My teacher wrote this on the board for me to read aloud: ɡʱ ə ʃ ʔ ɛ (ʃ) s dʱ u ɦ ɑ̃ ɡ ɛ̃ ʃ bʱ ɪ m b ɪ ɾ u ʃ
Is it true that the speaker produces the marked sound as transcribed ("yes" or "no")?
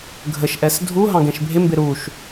no